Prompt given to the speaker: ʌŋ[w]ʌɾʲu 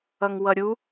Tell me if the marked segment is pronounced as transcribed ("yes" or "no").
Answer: yes